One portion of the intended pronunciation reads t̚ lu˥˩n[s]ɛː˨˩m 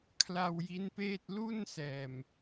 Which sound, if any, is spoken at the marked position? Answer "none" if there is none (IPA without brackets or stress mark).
s